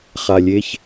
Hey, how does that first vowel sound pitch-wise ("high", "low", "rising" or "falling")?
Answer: low